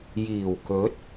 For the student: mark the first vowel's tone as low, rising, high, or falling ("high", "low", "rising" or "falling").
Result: low